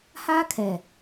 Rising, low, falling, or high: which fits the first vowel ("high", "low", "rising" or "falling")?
high